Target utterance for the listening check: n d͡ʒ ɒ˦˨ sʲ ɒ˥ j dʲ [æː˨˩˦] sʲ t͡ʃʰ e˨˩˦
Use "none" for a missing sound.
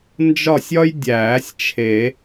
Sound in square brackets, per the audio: æː˨˩˦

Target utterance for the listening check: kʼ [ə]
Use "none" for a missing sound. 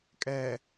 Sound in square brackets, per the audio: ɛ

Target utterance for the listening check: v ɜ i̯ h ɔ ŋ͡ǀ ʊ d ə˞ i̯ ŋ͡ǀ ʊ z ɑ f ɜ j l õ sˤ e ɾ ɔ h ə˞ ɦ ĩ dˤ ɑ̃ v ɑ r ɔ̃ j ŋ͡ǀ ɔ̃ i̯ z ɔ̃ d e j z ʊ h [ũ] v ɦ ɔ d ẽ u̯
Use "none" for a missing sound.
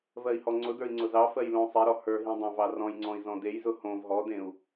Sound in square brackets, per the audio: õ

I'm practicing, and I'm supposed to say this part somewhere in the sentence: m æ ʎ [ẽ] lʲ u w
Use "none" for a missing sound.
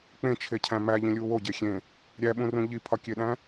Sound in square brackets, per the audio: ĩ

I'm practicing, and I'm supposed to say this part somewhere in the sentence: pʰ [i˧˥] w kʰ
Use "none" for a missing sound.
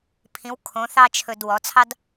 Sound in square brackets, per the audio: ĩ˧˥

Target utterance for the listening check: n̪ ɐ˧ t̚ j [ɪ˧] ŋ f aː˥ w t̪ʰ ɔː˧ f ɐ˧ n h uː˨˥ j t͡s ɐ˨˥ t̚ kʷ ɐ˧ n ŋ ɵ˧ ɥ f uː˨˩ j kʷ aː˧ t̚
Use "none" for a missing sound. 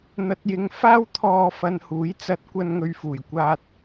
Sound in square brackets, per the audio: ɪ˧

